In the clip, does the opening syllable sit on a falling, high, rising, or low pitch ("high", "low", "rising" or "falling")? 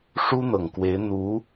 high